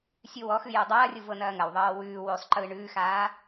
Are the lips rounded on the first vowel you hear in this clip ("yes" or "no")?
yes